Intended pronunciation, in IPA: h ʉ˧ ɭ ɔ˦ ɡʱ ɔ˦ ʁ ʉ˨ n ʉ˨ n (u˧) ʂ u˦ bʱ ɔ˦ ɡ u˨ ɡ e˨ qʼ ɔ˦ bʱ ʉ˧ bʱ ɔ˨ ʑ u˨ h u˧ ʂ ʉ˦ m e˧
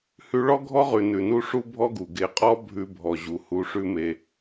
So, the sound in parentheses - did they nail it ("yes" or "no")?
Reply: yes